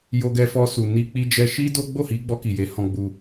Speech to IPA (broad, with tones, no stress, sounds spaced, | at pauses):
j o˧ ɡ ɛ˧ f ɔ˧ s u˨ n i˧ k͡p i˧ d͡ʒ ɛ˧ ʃ i˦ d o˦ ɡ͡b o˦˨ h i˨˦ ɡ͡b ɔ˧ k i˨ j e˨˦ h ɔ̃˧ ɡ͡b u˧